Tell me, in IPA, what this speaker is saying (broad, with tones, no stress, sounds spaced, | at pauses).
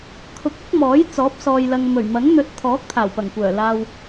kʰ ʊ˨˥ k̚ ɐ˨˥ k̚ m ɔː˨˥ j t͡s ɔː˨˥ p̚ s ɔː˨ j l ɐ˨ ŋ m ɵ˨˩ ɥ m ɐ˨˥ ŋ n̪ ɵ˨˥ t̚ t̪ʰ ɔː˨˥ k̚ t̪ʰ aː˨˩ w p ɐ˨˩ ŋ kʷ œː˨˩ l aː˨ w